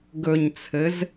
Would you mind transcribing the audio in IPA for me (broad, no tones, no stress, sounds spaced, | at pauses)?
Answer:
ɡ ɵ ɲ t͡sʰ ɘ z